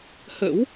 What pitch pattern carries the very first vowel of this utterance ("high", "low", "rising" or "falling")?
rising